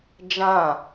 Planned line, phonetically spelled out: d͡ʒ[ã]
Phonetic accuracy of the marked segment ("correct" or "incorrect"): correct